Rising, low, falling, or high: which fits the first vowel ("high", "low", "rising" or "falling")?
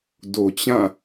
low